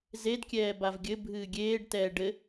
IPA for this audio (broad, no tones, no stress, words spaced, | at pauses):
zedkʲɛː bavɡʲɘ bʱɨːɡʲeːɖtɛː ɖɘ